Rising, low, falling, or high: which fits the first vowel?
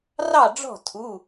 falling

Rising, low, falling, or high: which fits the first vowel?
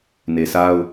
low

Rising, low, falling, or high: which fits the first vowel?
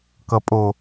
low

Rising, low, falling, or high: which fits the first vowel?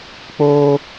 high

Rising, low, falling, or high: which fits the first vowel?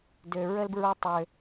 low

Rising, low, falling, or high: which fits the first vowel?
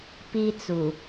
high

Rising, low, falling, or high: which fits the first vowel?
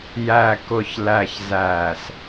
low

